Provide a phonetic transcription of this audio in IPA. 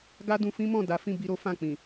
ɡa˦dũ˧ fĩ˦mɔ̃˦˨ da˨˦ fĩ˦˨bi˧ɾo˦ fã˦˨k͡pĩ˨

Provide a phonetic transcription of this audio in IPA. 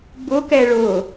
bʊkɛ ɭʊ

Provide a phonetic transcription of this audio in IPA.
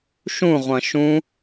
ʃũʁʷɐ̃ ʃũ

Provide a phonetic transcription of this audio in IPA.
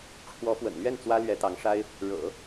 ʈ͡ʂʰwɔ˧˥fwə̰˨˩nlɥɛ˥˩n t͡swä˥lɥɛ˧˥t̪ɑ˧˥ŋʂa˥ɪ̯ | ɻɤ̰˨˩˦

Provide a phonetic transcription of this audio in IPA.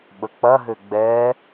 ɓək͡pɐɦø ɡ͡bɛ

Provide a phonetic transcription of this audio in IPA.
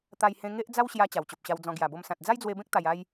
t̪a˧jhẽ˧ŋe˦ʔd͡za˦w ɕja˧ t͡ɕa˨˩wt͡ɕo˨p̚ɕa˧wd͡zɔ̃˧ ɡja˨˩bo˧msã˨t̚ d͡za˦jd͡zwe˧bẽ˦k̚ t̪a˧ja˦j

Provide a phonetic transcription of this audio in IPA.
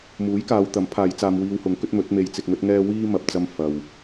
muː˨˥jkaː˨˧wt̪ɐ˨˥mpʰaː˨˧j t͡saː˧mwiː˧whʊ˨˥ŋkɵ˨˥t̚ mɵ˨˥t̚me˧j t͡sɪ˧k̚ŋɵ˥t̚ŋɛː˥ wiː˥mɐ˨p̚t͡sɐ˧m fɐ˨w

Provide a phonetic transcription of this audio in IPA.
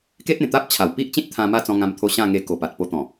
ke˦t̚ẽ˨˩t̪a˦p̚t͡ɕʰa˨˩w pi˦ʔt͡ɕĩ˦t̚t̪ʰã˧ ma˥˧t͡sɔ̃˧ŋã˧mt̪ʰo˧ ɕã˥˧ŋe˧ ko˨˩pa˨t̚po˧ t̪ɔ̃˨˩

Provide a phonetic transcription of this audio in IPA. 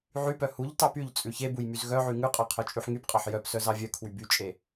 ʕypœ huʎtɑ pyʎt͡sʼʉ çebuj myzɣœʕy ŋʉqʼɑ qʰœt͡ʃʼʉħŋypqʼɑħ jœpsœ zɑvʲœkʰwy byt͡ʃʼe

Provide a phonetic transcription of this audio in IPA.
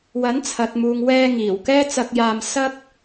wɐ˨˥nt͡sʰɐ˨t̚muː˨ŋ wɛː˧ŋiː˨˩w kɛː˥t͡sɐ˧k̚jaː˧m sɐ˥k̚

